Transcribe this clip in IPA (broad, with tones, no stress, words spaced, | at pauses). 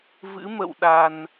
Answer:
vɨ̰˧˥mə̰˧˨w ɗa˨˩n